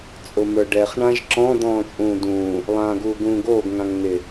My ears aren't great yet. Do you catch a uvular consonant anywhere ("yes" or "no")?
yes